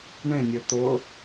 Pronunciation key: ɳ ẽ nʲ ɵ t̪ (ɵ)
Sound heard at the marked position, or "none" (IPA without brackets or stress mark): ʊ